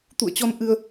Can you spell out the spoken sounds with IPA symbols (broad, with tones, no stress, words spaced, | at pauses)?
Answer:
t̪ṵ˧˨ə̯t͡ɕɔ˧n ʔɨ˧ə̯